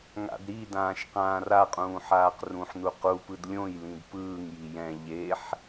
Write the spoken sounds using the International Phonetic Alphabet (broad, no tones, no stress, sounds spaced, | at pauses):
ŋ a̰ d ɾ i d ãː ʃ q ãː r a qʼ ũː ħ aː q r ũ ħ n u q u p ɯ d lʲ õ j l ĩ d p ɯː ŋ j i j ɛ̃ ʎ e ħ